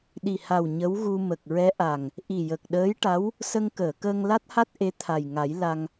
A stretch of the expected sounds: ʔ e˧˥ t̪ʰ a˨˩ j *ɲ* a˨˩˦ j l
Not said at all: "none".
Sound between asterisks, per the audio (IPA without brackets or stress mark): ŋ